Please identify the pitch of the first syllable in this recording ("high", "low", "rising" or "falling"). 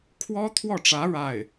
high